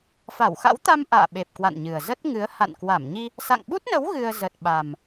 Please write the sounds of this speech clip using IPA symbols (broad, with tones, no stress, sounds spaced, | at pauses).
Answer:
f a˧˩ w x a̰˧˥ w t̪ a˧ m ʔ a̰ː˧˨ ɓ e˨˩ p̚ k w a̰˧˨ n ɲ ɨ˨˩ ə̯ z ə˦˥ t̚ ŋ ɨ˨˦ ə̯ h a̰˧˨ n k w a˧˩ m ɲ i˧ | s a̰˧˨ ŋ ɓ u˦˥ t̚ n ə˨˦ w ɣ ɨ˧ ə̯ z ə˨˩ t̚ ɓ a˨˩ m